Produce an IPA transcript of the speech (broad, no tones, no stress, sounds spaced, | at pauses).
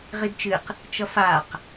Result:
ʁ i d t͡ʃ ɨ q | t͡ʃ ʌ f a q